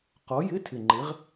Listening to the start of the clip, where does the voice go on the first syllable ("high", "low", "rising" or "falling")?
rising